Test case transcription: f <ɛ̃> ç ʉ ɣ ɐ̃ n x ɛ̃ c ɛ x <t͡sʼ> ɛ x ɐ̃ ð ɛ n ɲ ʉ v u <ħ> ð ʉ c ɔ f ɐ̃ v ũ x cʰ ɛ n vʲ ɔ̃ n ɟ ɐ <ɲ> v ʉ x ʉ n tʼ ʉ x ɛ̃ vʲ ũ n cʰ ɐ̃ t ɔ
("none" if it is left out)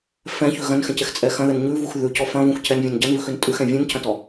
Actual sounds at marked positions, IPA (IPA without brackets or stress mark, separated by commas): ɛ̃, t͡sʼ, x, n